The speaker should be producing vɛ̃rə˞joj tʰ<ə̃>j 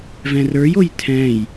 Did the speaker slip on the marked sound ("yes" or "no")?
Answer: yes